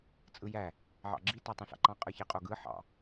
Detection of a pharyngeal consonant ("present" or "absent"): present